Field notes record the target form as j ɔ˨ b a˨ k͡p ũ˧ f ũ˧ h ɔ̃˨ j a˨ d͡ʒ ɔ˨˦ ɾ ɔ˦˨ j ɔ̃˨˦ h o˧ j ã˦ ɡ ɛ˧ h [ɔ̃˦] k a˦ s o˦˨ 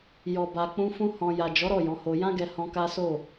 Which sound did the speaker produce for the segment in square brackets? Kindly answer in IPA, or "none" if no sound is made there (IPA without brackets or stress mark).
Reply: ɔ̃˧